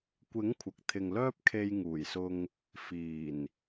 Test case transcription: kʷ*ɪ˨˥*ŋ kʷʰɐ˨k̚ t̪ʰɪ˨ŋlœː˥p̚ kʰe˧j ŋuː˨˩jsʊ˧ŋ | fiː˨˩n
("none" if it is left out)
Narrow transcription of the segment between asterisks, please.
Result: ɪ˨˥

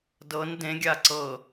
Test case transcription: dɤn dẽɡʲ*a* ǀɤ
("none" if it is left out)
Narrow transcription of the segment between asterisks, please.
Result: a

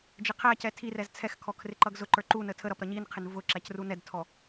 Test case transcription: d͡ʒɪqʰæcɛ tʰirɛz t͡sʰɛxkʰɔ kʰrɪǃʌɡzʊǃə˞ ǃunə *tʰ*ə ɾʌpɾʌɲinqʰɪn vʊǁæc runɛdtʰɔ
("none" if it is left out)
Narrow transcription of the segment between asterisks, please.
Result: tʰ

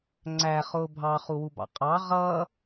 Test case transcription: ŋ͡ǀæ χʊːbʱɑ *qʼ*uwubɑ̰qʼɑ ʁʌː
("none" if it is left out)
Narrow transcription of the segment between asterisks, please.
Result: χ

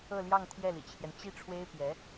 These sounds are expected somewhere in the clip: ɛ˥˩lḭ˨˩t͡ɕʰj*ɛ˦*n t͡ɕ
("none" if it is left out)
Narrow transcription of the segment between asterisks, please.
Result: ɛ˦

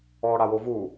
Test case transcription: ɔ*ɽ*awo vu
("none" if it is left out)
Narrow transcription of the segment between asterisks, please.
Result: ɽ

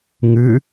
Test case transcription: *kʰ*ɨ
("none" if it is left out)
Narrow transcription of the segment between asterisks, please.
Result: ŋ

